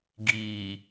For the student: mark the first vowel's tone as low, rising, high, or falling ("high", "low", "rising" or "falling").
low